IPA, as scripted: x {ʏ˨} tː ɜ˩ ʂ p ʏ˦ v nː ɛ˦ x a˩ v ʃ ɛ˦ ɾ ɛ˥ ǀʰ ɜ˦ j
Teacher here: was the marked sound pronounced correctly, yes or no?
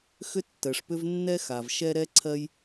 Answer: no